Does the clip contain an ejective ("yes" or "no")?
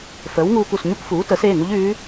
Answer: no